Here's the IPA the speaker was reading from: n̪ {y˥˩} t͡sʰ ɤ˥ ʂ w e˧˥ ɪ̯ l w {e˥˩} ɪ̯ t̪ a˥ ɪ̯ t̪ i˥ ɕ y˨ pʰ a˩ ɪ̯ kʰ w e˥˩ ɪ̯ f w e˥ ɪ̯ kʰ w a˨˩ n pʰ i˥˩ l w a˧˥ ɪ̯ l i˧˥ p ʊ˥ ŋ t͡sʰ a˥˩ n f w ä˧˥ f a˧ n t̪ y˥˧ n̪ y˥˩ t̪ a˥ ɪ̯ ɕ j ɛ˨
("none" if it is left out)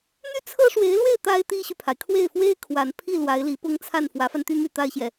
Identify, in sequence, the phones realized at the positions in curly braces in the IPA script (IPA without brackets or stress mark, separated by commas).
y˥˩, e˥˩